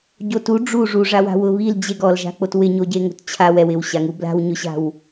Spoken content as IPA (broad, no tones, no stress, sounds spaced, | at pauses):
ɟ o t u ɖ͡ʐ u ʐ u ʐ a w a̤ w ʊ β i l d͡ʑ e ɡ ɔ l ʒ a̤ k͡p o t w ɪ ɲ o ɟ e ŋ o̤ t t͡ɕʰ a w ɛ w ɪ w ɕ a ŋ u b l a̤ w ɲ ʊ ɕ a̤ w